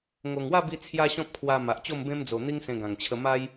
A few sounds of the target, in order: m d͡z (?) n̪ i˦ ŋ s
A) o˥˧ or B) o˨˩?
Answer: B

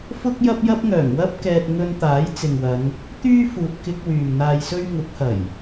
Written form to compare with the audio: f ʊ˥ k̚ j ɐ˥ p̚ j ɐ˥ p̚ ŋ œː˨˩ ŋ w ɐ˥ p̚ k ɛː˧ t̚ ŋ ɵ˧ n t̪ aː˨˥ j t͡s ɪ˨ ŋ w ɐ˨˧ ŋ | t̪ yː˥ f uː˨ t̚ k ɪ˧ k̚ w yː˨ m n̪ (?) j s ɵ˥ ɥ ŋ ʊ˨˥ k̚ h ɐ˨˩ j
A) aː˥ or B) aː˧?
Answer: B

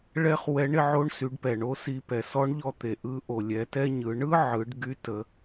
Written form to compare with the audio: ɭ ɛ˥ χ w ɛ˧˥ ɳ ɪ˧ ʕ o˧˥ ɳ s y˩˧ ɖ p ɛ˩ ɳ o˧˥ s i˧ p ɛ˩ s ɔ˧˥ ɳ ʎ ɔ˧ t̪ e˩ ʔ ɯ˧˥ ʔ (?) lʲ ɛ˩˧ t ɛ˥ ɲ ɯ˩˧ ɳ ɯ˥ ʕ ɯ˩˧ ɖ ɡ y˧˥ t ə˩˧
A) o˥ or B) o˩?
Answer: B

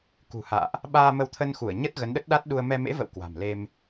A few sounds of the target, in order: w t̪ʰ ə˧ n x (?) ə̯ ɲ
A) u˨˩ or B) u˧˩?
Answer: B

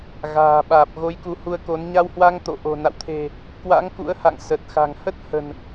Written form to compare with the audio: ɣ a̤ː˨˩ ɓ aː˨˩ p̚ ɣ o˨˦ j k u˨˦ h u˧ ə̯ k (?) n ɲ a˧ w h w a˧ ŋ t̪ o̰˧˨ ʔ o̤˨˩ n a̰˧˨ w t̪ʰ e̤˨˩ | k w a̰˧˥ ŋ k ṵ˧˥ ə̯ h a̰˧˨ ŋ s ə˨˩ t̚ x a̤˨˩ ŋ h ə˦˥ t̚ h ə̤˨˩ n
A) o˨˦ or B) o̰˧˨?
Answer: A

